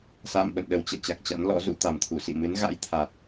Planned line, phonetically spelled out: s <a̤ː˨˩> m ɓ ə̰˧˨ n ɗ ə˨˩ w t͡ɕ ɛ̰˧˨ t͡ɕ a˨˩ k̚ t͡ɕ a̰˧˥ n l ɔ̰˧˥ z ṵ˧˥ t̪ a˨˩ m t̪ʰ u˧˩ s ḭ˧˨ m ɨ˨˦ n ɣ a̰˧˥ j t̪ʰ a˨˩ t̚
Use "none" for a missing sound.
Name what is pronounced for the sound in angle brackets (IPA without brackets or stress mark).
a̰ː˧˨